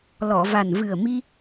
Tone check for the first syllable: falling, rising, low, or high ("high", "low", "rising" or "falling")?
low